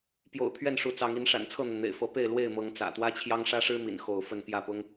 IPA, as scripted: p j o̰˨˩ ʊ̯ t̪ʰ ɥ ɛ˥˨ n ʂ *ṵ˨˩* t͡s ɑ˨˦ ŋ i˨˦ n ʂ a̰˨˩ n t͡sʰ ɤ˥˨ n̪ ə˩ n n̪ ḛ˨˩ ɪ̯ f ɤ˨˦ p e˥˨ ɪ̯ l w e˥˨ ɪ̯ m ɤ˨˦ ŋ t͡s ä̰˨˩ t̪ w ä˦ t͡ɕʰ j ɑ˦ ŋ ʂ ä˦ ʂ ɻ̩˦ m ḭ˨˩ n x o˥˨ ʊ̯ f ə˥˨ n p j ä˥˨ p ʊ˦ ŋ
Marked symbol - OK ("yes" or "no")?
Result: no